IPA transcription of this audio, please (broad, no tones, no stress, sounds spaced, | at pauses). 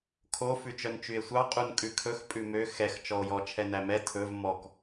kʰ o f ʉ t͡ʃ œ n t͡ʃ y e̯ sʷ ɑ qʼ u n kʼ ʉ kʰ ɵ x pʼ ʉ m ø x ɛ x t͡ʃ ɔ o̯ j ɔ t͡ʃʰ ɛ n æ m ɛ tʰ ɵ v m ɔ k